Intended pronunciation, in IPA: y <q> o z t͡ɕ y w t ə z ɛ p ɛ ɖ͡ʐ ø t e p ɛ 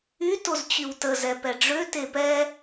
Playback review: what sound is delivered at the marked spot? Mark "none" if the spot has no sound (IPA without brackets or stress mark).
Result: t